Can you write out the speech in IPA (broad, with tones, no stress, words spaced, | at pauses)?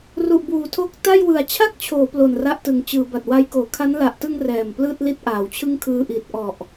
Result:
ru˨˩ʔbuː˩˦tʰo˦˥k̚ ta˥˩jwɯ˨˩a̯ t͡ɕʰa˥˩k̚t͡ɕʰoː˩˦ plo˨˩nra˦˥ʔtɯ˨˩ŋ t͡ɕɯː˩˦ba˨˩t̚wa˦˥jkoː˩˦ kʰa˦˥nla˨˩ʔ tɯ˧ŋ rɛː˨˩mplɯː˥˩t̚ li˥˩t̚ʔaː˩˦wt͡ɕʰɯ˥˩ŋ kʰɯː˧ʔi˨˩t̚ʔɔ˨˩ʔ